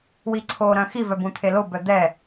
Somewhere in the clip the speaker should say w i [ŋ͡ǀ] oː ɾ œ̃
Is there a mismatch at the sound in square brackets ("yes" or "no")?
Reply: yes